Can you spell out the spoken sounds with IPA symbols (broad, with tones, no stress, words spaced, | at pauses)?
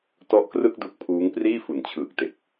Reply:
tɔ˦˥ʔkrɯ˥˩k̚ du˦˥k̚pʰuː˦˥ŋ priː˥˩fu˨˩nt͡ɕʰɯː˨˩k̚te˨˩k̚